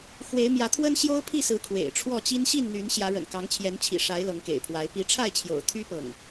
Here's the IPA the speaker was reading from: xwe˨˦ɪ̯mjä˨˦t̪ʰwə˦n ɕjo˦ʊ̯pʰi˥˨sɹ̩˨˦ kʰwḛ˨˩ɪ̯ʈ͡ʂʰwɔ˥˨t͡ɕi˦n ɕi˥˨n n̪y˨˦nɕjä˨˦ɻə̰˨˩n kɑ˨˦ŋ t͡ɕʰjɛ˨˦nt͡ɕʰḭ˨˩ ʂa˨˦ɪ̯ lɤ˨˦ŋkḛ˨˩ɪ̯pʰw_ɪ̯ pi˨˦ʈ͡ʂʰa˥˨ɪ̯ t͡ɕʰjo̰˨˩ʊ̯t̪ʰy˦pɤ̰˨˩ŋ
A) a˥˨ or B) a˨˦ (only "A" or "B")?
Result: B